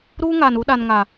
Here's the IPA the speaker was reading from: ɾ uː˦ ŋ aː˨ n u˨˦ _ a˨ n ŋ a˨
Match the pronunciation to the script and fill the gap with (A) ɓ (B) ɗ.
B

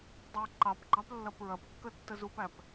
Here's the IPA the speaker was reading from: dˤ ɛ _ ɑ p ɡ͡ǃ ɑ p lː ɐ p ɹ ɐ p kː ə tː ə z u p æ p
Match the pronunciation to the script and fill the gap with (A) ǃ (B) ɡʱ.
A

